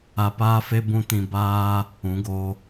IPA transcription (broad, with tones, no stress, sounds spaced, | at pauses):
a˧ p aː˦ f e˦ b ũ˦ t ĩ˧ b aː˦ | ũ˨˦ ɡ o˧